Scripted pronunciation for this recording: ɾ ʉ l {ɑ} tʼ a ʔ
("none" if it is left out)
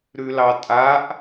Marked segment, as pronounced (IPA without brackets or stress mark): ɑ